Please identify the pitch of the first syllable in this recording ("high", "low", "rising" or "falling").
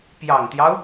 low